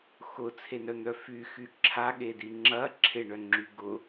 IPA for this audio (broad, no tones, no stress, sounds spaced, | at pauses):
x ʊ t͡sʰ e n œ n̪ œ f y x y ǁʰ a ɠ e d i ŋ͡ǁ ɐ ǁʰ ɪ ɳ œ ŋ͡ǁ y ɡ ʊ